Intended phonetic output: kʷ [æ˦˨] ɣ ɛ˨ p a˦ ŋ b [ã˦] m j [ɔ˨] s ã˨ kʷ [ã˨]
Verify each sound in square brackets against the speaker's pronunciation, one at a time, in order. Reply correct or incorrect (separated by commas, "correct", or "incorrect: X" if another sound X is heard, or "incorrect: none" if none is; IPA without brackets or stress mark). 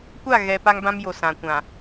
incorrect: a˦˨, correct, incorrect: o˨, correct